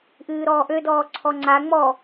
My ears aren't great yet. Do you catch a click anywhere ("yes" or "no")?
yes